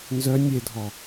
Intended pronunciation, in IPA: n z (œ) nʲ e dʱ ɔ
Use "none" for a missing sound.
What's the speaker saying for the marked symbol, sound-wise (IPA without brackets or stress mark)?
œ